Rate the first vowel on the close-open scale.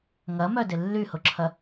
open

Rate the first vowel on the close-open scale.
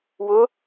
close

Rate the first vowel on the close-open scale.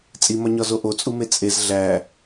close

